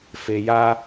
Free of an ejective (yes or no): yes